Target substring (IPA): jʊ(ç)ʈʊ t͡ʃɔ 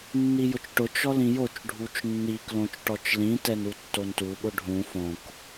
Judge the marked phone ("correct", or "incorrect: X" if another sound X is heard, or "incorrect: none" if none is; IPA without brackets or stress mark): incorrect: t͡ʃ